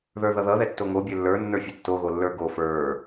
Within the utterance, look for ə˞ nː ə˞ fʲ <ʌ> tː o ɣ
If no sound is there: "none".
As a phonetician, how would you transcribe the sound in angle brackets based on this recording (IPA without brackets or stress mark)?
ʌ